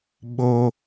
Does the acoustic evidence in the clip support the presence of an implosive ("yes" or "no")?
yes